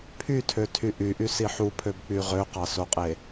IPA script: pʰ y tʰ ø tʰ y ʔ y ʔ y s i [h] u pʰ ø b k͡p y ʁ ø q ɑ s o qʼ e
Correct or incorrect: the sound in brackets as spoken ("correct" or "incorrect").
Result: incorrect